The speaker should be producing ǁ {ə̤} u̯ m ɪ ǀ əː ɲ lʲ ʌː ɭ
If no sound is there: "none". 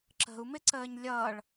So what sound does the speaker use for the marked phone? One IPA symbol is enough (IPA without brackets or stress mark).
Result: ə̤